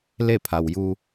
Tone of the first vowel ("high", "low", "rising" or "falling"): falling